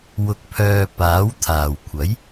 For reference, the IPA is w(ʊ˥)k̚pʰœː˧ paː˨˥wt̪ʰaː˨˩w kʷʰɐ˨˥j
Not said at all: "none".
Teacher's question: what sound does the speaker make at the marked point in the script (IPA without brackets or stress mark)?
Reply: ʊ˧